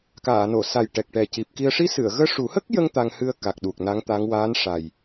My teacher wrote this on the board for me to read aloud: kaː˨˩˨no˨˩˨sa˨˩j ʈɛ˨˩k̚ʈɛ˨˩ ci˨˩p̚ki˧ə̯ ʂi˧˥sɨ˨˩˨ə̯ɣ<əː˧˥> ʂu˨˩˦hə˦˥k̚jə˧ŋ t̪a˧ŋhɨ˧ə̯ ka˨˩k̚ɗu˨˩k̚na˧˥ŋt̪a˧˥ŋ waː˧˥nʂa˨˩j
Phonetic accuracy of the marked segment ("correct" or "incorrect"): correct